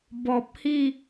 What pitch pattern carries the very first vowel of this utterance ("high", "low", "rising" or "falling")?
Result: low